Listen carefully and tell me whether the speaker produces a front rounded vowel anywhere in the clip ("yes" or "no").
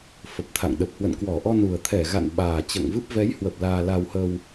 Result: no